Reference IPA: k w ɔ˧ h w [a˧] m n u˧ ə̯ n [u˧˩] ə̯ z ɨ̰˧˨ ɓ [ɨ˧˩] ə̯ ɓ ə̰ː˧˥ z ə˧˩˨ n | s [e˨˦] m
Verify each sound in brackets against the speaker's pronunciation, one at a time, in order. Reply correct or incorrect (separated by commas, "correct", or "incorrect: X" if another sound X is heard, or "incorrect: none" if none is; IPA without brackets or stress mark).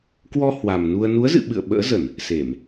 incorrect: a˨˩, incorrect: u˨˦, incorrect: ɨ̰˧˨, incorrect: e˧˩˨